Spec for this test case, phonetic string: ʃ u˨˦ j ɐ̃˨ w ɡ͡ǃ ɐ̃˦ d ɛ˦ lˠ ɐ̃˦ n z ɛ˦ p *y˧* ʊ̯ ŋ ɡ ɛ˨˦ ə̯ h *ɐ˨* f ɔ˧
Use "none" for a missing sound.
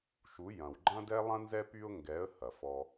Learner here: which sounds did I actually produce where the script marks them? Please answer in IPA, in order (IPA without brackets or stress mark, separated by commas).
y˧, ɐ˨